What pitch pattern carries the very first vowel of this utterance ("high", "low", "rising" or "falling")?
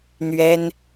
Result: high